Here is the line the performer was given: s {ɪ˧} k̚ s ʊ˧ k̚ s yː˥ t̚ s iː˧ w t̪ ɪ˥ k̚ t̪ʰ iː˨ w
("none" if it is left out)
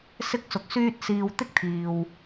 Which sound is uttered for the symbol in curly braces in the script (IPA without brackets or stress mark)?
ɪ˥